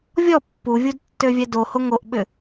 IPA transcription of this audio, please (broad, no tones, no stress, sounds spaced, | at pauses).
vʲ ɔ pː u vʲ u d tː ø vʲ ɛ d o h o ŋ o ʔ ɓ ʏ